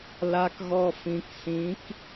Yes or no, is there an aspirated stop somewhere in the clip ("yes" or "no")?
no